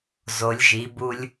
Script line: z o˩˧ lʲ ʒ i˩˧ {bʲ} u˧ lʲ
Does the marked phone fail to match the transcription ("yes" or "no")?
yes